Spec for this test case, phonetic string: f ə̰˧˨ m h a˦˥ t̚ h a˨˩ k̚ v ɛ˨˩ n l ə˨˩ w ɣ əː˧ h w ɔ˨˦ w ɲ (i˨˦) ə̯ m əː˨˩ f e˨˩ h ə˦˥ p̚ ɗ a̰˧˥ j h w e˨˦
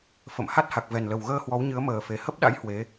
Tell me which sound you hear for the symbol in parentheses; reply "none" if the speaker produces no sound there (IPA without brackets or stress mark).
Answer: ɨ˨˦